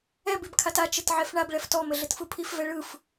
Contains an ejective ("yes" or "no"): no